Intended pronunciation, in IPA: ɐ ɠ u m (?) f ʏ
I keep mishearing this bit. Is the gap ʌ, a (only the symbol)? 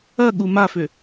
a